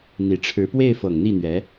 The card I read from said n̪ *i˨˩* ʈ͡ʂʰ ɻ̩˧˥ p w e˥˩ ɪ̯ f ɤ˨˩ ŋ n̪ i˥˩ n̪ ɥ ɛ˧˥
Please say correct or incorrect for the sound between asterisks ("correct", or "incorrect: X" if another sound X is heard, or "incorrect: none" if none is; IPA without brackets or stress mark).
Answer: correct